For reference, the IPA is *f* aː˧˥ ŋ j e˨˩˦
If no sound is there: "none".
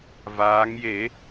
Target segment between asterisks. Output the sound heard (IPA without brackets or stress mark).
v